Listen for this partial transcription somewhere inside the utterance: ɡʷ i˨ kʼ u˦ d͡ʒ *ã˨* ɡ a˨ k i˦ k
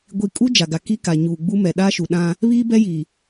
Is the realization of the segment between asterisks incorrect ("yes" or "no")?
yes